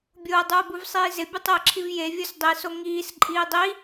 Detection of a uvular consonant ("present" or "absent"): absent